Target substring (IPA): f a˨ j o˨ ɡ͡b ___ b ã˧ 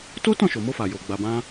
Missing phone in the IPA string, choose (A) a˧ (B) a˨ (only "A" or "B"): B